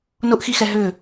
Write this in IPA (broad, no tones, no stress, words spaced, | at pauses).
nʊʔxixɛ ɦʏ